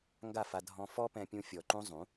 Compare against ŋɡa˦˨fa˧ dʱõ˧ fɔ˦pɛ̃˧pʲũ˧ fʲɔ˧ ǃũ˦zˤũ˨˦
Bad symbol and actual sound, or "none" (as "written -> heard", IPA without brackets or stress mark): õ˧ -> ɔ̃˧